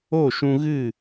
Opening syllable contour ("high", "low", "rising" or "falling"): falling